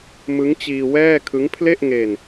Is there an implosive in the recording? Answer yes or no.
no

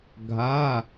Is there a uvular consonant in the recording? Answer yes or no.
no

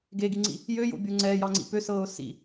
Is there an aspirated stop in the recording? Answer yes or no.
no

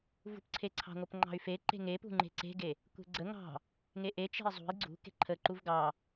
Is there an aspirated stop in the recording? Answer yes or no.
yes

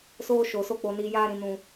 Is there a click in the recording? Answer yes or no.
no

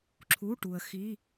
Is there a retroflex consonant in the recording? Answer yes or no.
yes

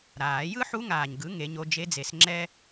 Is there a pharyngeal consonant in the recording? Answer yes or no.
yes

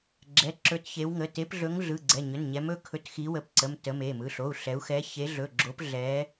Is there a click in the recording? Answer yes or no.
yes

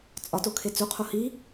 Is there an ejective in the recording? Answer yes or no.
yes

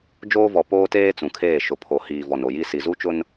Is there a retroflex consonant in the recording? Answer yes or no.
no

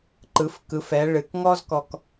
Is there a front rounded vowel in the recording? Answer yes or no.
no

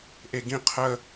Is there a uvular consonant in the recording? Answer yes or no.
yes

